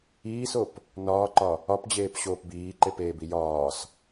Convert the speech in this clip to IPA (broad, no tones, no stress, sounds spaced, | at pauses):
iː s o p | n ɒː ǃ ɒ | ɒ p d͡ʑ eː p ɕ oː p b iː ǃ e p eː b i j ɒː s